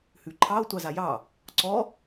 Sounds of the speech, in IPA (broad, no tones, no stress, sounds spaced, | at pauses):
h ʉ ǃʰ ɑ o̯ tʷ ɑ z a j ɑ | ǀ ɔ